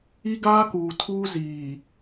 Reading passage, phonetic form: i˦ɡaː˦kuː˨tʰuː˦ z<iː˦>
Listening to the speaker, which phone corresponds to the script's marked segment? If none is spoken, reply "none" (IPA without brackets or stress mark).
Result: iː˨